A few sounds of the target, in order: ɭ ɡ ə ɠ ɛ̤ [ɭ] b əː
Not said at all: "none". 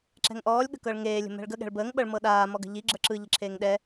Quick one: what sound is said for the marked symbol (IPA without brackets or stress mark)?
ɭ